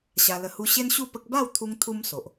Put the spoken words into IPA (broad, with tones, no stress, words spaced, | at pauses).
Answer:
ɕa˧lə˧hu˦ ɕe˦nɕu˥˧pə˦k̚ ba˥˧wt̪ʰu˧ŋ t̪ʰu˦mso˨ʔ